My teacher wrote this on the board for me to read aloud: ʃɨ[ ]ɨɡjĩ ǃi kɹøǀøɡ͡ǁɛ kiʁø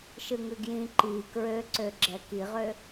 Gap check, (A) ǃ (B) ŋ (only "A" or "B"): B